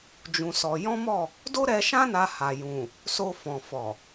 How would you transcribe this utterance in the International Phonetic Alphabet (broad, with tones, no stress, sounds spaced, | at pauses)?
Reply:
d͡ʒ ũ˧ s ɔ˧ j ɔ̃˦ m ɔ˦˨ | d o˦ ɾ ɛ˧ ʃ ã˦ n a˧ h a˨ j ũ˨ | s o˧ f ɔ̃˨ f ɔ˨